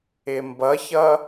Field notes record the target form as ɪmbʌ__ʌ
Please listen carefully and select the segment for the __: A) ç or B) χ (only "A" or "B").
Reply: A